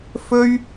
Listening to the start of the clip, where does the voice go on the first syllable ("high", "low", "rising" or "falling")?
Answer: high